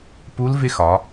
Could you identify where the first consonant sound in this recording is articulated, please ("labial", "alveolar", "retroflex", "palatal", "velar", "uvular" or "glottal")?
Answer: labial